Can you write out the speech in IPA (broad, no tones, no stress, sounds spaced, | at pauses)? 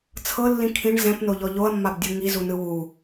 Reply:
t͡sʰ ɤ lː ĩ kʰ ĩ ɳ z ɛ̃ p n o ʎ ɔ ʎ o ɐ̯ mː a b dʲ ɤ ŋ i z u n ɯ w u